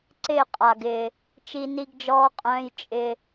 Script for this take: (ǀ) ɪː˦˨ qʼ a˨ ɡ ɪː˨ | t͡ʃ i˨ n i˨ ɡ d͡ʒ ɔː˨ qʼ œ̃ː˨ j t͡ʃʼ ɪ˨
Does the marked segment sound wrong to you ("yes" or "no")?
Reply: no